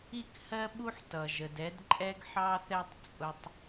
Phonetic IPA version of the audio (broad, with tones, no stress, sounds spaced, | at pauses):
i˥˩ k h ɜ˥ ɓ u˥ ħ t ʌ˧ ʒ ə˧ d ɛ˥ d ǃʼ ɛ˥ ɡ ħ ɑ˥ θ ɛ˥ tˤ t͡sʼ ʊ˥ tˤ